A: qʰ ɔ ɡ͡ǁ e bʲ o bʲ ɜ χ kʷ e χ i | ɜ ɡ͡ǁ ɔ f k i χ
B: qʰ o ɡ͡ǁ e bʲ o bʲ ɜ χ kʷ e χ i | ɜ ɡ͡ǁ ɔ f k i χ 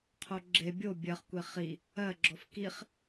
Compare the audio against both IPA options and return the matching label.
B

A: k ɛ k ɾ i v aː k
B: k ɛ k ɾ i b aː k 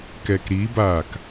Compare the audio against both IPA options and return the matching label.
B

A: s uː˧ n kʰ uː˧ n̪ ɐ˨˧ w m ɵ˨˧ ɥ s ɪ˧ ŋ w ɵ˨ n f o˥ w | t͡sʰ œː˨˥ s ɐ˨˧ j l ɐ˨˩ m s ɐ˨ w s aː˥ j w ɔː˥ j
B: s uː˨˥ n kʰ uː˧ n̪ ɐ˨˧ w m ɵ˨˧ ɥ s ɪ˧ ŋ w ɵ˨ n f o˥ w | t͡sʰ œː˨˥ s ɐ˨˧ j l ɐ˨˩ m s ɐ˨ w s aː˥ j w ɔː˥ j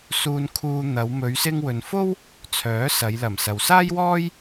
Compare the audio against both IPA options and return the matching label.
A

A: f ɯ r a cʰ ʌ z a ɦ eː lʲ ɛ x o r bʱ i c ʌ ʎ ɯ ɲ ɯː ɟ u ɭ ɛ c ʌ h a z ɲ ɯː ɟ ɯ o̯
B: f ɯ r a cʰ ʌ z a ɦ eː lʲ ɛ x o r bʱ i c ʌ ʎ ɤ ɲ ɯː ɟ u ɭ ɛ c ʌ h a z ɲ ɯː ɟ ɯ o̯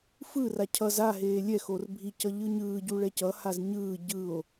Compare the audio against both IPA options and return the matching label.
A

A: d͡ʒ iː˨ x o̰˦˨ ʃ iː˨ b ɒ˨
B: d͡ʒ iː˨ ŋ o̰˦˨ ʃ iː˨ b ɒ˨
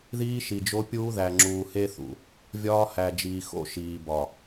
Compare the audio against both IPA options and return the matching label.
A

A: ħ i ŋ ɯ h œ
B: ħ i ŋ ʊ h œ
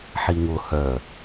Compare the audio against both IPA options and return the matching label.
B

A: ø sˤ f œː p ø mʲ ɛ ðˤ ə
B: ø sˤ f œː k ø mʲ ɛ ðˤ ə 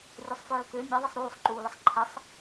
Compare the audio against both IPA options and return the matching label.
B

